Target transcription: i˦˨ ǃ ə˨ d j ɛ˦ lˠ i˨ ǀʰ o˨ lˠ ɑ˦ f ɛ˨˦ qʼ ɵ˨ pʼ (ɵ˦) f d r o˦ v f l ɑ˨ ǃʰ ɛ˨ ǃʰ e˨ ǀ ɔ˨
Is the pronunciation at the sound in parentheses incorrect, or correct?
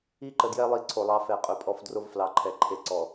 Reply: incorrect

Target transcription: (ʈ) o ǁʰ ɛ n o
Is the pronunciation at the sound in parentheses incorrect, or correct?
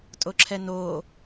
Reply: incorrect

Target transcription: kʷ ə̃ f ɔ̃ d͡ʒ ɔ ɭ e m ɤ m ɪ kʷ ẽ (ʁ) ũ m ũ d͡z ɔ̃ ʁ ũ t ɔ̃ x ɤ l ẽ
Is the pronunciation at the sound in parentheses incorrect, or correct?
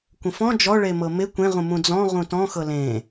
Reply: correct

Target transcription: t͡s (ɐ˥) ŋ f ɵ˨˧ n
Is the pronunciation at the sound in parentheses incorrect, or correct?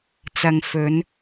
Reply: incorrect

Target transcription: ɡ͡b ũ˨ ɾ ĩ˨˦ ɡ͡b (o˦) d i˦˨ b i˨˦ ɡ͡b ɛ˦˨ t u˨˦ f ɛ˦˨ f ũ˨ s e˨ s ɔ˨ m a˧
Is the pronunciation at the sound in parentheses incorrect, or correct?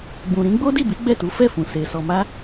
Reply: correct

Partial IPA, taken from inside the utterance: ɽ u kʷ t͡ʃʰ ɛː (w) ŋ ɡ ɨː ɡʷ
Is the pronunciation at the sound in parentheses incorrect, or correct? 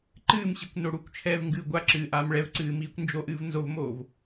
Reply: incorrect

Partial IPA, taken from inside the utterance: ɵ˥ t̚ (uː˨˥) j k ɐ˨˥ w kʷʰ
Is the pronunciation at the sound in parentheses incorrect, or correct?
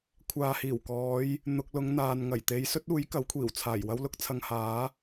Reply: correct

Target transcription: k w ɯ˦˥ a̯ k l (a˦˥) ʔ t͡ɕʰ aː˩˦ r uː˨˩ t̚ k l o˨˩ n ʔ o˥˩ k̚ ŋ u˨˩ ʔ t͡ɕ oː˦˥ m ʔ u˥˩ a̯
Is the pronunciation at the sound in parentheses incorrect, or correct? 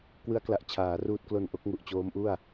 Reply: incorrect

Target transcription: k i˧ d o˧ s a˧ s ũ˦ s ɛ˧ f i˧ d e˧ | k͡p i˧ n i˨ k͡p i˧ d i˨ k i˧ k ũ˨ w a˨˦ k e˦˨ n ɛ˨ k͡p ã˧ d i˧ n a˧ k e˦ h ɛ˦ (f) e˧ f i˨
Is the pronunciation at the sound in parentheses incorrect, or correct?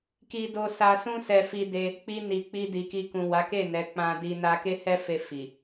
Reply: correct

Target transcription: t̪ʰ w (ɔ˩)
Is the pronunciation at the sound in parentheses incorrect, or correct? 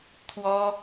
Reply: incorrect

